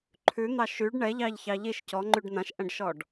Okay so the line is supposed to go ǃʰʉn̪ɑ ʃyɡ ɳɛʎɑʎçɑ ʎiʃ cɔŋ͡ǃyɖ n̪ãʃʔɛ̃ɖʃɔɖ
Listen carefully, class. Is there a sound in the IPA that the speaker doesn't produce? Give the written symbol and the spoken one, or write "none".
ɡ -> ɖ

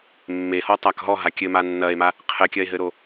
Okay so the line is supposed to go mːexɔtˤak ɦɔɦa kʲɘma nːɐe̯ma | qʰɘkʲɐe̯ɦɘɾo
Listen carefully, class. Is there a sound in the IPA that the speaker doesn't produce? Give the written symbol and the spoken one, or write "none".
x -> h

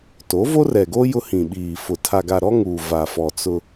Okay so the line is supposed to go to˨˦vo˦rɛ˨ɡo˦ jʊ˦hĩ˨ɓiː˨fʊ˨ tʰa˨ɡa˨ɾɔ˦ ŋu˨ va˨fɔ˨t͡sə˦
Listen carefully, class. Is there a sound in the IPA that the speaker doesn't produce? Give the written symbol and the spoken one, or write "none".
ə˦ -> ʊ˦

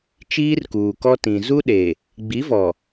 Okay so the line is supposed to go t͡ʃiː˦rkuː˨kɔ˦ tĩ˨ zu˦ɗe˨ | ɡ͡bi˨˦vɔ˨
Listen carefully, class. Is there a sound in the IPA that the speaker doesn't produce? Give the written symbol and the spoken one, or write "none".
none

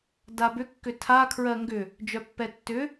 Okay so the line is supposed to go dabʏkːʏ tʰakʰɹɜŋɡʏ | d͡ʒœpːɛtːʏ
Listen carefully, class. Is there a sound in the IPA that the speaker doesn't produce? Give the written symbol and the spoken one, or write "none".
none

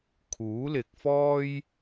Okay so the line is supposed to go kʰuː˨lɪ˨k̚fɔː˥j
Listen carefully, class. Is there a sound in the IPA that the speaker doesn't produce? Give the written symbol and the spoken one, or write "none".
uː˨ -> uː˨˥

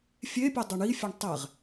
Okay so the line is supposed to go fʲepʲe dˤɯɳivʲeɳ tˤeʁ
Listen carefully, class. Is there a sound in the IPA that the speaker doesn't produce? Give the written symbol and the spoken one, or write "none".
vʲ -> fʲ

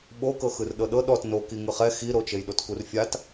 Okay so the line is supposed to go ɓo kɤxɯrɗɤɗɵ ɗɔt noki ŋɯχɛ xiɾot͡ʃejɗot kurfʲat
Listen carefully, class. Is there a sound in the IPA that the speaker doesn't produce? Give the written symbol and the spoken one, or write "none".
ɵ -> ɤ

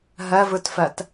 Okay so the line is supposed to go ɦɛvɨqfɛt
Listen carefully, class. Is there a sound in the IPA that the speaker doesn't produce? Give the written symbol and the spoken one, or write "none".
q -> t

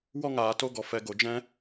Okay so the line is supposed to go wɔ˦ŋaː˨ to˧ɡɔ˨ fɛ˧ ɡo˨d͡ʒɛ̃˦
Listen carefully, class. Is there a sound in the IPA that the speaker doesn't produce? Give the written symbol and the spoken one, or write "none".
none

